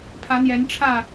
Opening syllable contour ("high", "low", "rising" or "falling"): rising